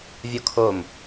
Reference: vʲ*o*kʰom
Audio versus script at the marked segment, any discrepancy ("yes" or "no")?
no